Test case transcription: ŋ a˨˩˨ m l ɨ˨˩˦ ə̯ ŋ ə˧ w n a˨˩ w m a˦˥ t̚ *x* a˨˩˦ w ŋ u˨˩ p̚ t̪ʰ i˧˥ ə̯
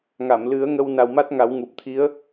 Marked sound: incorrect: ŋ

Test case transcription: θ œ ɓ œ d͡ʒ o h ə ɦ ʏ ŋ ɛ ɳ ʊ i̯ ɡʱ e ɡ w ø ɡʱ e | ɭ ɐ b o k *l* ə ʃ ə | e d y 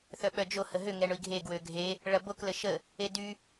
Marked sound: correct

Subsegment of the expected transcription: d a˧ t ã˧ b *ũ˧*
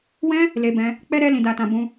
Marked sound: correct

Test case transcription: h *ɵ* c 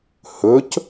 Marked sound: correct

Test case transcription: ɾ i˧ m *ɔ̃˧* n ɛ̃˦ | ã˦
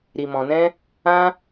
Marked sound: correct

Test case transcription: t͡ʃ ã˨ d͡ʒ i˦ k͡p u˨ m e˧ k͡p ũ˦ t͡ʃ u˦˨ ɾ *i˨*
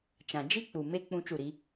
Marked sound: incorrect: i˦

